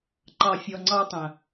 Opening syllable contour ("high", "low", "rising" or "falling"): low